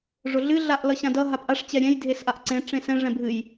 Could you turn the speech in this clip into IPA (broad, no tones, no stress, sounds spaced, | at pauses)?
ʐ ʊ ɮ ɨ ɮ a ʔ l ʌ ɕ ã d ʌ ɦ a p ʔ a ʂ t͡ɕ ɛ ɾʲ ɛ̃ j dʱ e s ʔ a ʔ ǀ ẽ ʈ͡ʂ ẽ s ɛ̃ ʐ ɛ̃ bʱ ɨ j